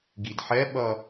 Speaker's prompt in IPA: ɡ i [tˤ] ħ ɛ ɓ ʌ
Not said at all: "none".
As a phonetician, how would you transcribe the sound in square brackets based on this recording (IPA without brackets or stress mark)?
d